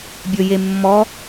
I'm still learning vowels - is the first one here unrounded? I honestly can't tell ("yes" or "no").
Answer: no